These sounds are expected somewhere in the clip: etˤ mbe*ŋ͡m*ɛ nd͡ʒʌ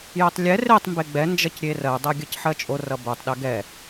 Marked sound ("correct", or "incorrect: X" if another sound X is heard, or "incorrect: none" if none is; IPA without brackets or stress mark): incorrect: ɡ͡b